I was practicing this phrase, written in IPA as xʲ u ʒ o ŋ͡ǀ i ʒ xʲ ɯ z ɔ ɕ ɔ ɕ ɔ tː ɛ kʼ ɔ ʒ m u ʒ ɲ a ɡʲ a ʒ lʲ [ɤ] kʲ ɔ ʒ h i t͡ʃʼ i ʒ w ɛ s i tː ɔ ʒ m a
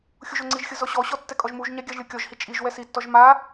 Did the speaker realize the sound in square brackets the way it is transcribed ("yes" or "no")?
yes